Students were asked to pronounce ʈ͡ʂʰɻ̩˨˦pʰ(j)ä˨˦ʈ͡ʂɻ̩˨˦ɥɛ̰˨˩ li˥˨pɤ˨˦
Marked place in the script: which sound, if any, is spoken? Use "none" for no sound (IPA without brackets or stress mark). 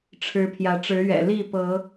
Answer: j